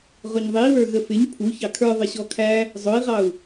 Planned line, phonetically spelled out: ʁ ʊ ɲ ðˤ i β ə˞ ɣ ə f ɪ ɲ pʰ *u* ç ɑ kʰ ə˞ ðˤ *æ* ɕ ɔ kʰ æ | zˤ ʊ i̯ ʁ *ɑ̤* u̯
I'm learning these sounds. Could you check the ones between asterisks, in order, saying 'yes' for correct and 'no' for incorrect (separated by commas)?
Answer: yes, no, no